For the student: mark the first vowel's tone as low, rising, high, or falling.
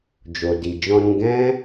low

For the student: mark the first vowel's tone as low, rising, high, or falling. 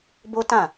high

